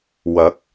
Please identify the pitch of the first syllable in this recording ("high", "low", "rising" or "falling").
rising